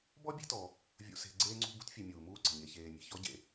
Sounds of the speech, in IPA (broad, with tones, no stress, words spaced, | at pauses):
bɔ˥ bʲe̤˥tɔ˨ | vʲṵ˨se̤˨ ɡ͡ǀeː˦ŋ͡ǀṳ˦ bṳ˦tfʲe˨mʲuː˩ muː˦ǀə̤˩ɲe˨ çeː˨mʲe̤˩ çɔ˥ɟḛ˩